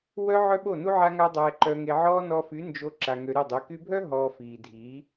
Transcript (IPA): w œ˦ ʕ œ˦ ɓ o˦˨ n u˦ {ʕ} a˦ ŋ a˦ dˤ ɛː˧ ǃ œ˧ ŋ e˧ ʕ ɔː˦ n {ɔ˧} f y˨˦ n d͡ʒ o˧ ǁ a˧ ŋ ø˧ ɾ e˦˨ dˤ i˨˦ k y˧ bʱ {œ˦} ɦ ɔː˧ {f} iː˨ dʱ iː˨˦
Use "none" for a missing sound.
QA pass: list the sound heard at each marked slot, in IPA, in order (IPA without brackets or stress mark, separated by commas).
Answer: ʕ, ɔ˧, œ˦, f